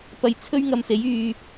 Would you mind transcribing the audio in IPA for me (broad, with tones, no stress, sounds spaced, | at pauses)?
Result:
p ɐ˧ j t͡sʰ ɵ˥ ɥ ŋ ɐ˧ m s e˨˥ j yː˧